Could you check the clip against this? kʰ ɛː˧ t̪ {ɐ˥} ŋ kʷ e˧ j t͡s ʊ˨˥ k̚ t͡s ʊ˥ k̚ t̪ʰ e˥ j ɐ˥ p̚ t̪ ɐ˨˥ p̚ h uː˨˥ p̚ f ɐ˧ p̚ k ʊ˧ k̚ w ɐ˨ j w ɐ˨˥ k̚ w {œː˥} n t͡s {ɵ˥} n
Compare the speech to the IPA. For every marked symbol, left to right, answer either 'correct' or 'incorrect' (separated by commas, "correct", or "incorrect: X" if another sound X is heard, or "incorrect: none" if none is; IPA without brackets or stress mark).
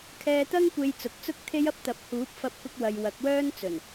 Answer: correct, correct, incorrect: ɵ˨˩